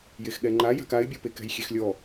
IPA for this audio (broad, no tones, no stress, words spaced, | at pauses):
jexɠɛŋ͡ǃa ja̤kaɪ̯bʲɔpe kɛ̤jxʲexlʲɔ